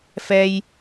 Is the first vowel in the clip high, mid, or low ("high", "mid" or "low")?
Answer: mid